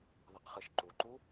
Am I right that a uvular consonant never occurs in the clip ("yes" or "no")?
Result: no